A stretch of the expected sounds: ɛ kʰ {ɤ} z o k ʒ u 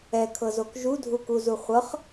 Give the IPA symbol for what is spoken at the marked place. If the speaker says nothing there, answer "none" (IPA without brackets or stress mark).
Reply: ɤ